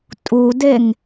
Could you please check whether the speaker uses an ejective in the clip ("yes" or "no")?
yes